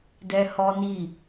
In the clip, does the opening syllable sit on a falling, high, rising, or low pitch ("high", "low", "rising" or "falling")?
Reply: high